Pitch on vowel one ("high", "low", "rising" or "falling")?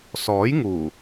rising